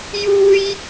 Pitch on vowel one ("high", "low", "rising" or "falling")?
high